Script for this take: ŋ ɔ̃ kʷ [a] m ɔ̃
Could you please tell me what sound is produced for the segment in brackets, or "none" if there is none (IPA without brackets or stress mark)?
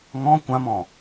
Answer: ã